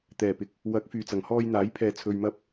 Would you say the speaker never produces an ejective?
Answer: yes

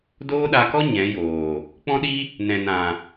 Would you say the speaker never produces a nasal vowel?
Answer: no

